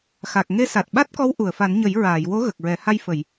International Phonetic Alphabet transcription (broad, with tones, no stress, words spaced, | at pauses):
xa˨˩k̚ŋe˧ sa˨˩t̚ɓa˦˥t̚kɔ˧˥w ʔu˨˩˨ə̯fa˨˩˦nɲə˨˩˦j ɹaː˨˩˨jwo˧˥ ɣə˨˩k̚ɹɛ˨˩˦ ha˧jfə˨˩˨j